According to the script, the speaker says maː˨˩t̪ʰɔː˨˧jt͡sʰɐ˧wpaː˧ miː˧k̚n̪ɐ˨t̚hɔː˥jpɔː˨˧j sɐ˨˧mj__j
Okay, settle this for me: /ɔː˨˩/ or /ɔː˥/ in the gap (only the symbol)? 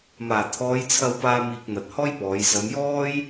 ɔː˥